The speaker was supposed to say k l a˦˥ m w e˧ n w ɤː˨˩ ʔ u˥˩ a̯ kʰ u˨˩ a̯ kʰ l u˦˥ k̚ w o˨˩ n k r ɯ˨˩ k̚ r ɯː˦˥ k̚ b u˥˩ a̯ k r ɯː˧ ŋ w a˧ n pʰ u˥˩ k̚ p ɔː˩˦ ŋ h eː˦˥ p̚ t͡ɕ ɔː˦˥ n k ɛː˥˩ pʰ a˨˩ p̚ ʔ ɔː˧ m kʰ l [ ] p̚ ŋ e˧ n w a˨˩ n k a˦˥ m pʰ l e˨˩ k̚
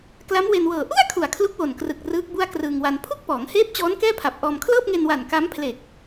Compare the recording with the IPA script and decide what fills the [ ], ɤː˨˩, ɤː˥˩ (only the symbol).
ɤː˥˩